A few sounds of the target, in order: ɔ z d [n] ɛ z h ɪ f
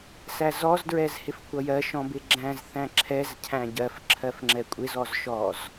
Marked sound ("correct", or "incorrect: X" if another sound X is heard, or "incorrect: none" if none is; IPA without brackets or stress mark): incorrect: ɹ